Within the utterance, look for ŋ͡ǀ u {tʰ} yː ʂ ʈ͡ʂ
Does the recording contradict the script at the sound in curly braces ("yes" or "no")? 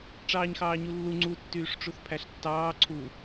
yes